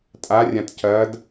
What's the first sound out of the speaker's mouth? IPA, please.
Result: tʼ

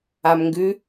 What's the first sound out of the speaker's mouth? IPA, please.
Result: a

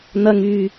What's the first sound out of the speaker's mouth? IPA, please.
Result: n̪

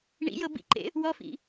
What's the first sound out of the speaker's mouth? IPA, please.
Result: ɳ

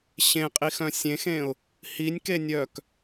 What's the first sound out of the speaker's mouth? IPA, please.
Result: ɕ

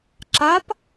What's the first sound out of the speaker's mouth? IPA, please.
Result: ǁ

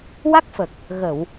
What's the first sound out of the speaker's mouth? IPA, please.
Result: w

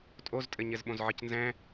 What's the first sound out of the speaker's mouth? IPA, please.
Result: tʼ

